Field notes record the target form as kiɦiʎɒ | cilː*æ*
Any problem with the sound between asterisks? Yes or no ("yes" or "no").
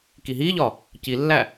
no